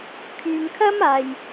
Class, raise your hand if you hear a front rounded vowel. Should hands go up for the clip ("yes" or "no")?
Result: yes